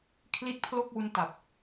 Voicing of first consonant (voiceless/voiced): voiceless